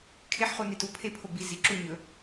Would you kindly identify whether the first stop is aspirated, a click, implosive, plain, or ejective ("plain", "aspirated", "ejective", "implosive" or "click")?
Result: aspirated